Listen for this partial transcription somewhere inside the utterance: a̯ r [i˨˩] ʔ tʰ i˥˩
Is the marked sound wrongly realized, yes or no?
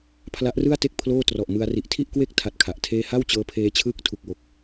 no